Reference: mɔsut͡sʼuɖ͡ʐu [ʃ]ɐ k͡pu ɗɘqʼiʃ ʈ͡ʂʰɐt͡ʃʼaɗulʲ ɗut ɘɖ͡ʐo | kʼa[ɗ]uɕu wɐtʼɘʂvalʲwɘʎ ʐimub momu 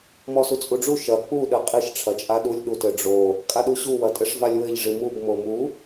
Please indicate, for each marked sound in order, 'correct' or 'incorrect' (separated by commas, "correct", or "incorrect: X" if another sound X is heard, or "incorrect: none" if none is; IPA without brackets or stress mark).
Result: correct, correct